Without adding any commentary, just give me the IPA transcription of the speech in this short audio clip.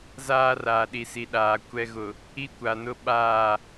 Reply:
z aː˦ r aː˨ ɗ i˨ s i˨ ɗ aː˨ kʷ ɛ˨ ɣ ʊ˨ | i˦ kʷ a˨ n ʊ˦ ɓ aː˦˨

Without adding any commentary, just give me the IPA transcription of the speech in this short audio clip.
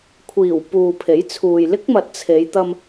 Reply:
kʷʰ iː˨˩ w p uː˨ pʰ e˨˥ j t͡sʰ uː˨ j l ɪ˥ k̚ m ɐ˨ t̚ t͡sʰ e˨˧ j t̪ ɐ˧ m

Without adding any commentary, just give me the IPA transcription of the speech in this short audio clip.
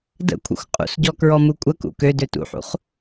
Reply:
d ə̰ kʷʰ ə̰ xʷ qʼ ṵ s ɟ ɔ k ɹ ɔ m u kʷʼ ə k ṵ k ø d ø t ṵ ħ ṵ χ

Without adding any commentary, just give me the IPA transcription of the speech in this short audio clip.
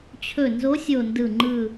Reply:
t͡ɕʰ ɵ˨˩ n z o˨˦ sʲ o˨˩ n d ɯ˨˩ ŋ͡ǃ ɯ˨˩

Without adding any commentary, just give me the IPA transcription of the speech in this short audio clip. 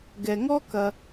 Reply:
ɡ ɛ˩ ŋ ɔ˥ k ɐ˩

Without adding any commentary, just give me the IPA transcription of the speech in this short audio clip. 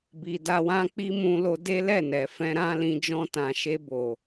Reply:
b i˨ d a˧ w ã˦ k͡p i˦ m ũ˧ l o˧ d e˦ l ɛ˦˨ n ɛ˨ f ɛ̃˧ ɾ ã˦ l ĩ˧ d͡ʒ ɔ̃˧ t ã˨ ʃ e˧ b o˨

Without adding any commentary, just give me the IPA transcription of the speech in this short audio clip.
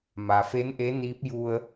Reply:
m a˩ f e˧˥ n ʔ e˧˥ n iː˧˥ p̚ j u˧ ə̯

